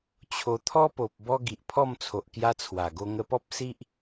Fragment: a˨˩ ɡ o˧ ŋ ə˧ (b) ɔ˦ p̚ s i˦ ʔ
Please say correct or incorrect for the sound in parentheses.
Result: incorrect: p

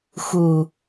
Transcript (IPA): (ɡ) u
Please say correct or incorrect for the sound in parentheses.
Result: incorrect: x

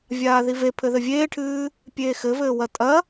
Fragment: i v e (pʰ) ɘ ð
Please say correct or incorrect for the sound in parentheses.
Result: correct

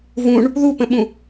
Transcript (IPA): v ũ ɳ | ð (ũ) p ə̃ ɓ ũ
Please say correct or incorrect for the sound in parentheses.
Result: incorrect: u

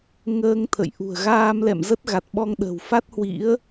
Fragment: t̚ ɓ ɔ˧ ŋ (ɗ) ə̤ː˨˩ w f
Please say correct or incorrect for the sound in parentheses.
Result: correct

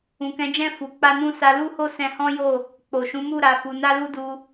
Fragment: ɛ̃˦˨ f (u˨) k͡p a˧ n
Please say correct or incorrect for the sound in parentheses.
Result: correct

